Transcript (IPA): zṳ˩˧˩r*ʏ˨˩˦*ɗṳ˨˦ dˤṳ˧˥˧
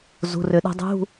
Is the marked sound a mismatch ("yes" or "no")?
no